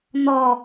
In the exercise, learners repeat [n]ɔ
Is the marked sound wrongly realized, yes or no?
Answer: no